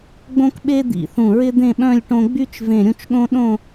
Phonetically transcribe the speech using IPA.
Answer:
ɡ͡bõ˥kɓe˥ d̪ḭ˧˩θũ˧˩ ɹɪ˥d̪ẽ˥˧ɓœ̃˥˧lʲ ʈõ˧ɡ͡by˥t͡ʃ vẽ˧˩ɾʲũ˧t͡ʃɠõ˥ ɗõ˥˧

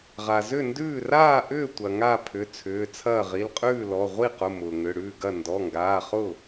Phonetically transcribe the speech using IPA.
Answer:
ʁa˩zʏ˥˩ ndʉː˥˩ raː˥˩ʔʏː˥˩ tʷɐ˩ ŋa˥˩pʰʏ˩˧˩ t͡sʰʏː˩˧˩t͡sʰɐː˥˩ ʁi˩˧˩lqʼʉː˥˩lɔ˩˧˩ ʁʷi˥˩qʊ˩˧˩ mʊː˩ŋʏ˩˧˩ɽʉː˥˩ɡɐ˥˩ ndɔ˩˧˩ŋɡaː˩˧˩χʊ˥˩

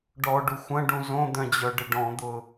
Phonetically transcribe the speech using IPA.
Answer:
ɖɔɖu xʷɐ̃ɖũ zõd̪œ̃d͡ʑœɖɪ ɖɔ̃d̪ʊ

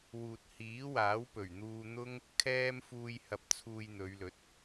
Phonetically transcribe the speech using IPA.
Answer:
wuː˨t̚hiː˨˥waː˨˥w pɵ˨˩ɥn̪uː˧n̪ʊ˥ŋ | kʰɛː˥m fuː˧j hɐ˧p̚t͡sʰuː˧jn̪ɵ˨˧ɥlɵ˨˥t̚

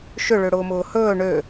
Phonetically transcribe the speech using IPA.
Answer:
ʃʏ ɭøɽʊːmʊːhɵː ɳø

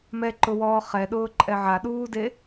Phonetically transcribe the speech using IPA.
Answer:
mɛǃʊwɔː χɛɗʊːǃʼɛ ʕaɗuːde

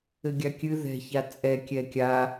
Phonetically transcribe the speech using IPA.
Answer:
ɘɡʲakʲɨ ðɛ̤ çat͡sʼɛ kʲɛkʲa

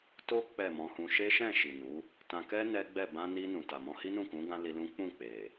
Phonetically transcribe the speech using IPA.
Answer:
to˦ k͡pɛ˦˨mɔ̃˧hũ˧ ʃe˦ʃɛ̃˦˨ ʃi˨nu˨˦ | tã˧kɛ˦ nɛ˦ɡ͡bɛ˦˨ bã˧ni˧ nũ˨ta˨ mɔ̃˧hi˦nũ˦˨kũ˨˦ ɡã˦li˧lũ˦ k͡pũ˦˨k͡pe˨

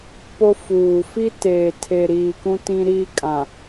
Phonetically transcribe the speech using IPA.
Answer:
po˦fuː˨ fi˦teː˨ tʰe˨ ɾiː˨kũ˦tĩ˦ɾiː˦ kʼã˨

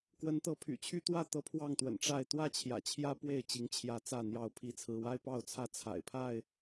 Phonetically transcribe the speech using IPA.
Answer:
kwə˨˦nt̪ɤ˨˦ pʰy̰˨˩t͡ɕʰy˦t̪wä˥˨ t̪ɤ˦pʰwɑ˥˨ŋt̪wə̰˨˩n ʈ͡ʂa˥˨ɪ̯ t̪wä˥˨t͡ɕʰjä̰˨˩t͡ɕʰjä˦ pwe˥˨ɪ̯ t͡ɕi˨˦ŋt͡ɕʰjä˨˦ t͡sä˥˨n̪jɑ˥˨ʊ̯pʰi˦t͡sʰɹ̩˦ wa˦ɪ̯pɑ˥˨ʊ̯t͡sʰä˦ t͡sʰa̰˨˩ɪ̯pʰa˥˨ɪ̯

